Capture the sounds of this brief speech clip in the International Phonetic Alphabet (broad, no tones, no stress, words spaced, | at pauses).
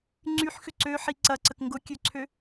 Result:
ŋ͡ǀyħxʏ ǀøħi ǀɐǀək ŋɡʊkʲøǀʰø